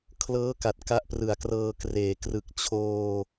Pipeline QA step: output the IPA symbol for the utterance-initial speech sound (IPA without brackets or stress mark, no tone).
kʰ